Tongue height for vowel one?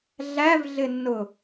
low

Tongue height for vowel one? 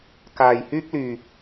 low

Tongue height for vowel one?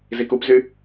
high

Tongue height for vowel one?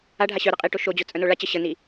low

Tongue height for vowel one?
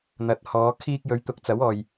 low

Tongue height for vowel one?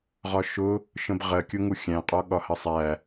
low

